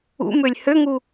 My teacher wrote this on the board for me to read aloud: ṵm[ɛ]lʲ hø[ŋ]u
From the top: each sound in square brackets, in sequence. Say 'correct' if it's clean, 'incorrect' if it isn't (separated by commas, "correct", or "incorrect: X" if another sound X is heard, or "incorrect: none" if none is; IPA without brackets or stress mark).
incorrect: ø, correct